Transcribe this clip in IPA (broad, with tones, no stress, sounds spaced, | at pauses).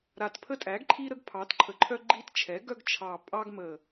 ɾ a˨˩ t pʰ ə˦ tʼ æ˩˥ ɡ ǃʰ i˦ ɾ ə˦ ɡ pʰ ɑ˩˥ t ǃʰ ə˩˥ ǃʰ œ˦ ɡ͡ǃ i˦ t t͡ʃʰ ɛ˩˥ ɡ œ˦ ɡ t͡ʃʰ ɑ˨˩ pʼ ɑ˦ ɡ m ə˨˩